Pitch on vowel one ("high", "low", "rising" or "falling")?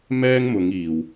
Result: high